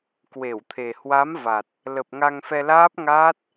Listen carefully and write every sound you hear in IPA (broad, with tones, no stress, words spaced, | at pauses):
kwe˧˩wt̪ʰe˨˩ hwa˨˦m va˨˩t̚ | lə˨˩p̚ŋa˧ŋfɛ˧ laː˦˥p̚ŋaː˦˥t̚